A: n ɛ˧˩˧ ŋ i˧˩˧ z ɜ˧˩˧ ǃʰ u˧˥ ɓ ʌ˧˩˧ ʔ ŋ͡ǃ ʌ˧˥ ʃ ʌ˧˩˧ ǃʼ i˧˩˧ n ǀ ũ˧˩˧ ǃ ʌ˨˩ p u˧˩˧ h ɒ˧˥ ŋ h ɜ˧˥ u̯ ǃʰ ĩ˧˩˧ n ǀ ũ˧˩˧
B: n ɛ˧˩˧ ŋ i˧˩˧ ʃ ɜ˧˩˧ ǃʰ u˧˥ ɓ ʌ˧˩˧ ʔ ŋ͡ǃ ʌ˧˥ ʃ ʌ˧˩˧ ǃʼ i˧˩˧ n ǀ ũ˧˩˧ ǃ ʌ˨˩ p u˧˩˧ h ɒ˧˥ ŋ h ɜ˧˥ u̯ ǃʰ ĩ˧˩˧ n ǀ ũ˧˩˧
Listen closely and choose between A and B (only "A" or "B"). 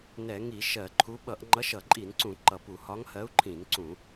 B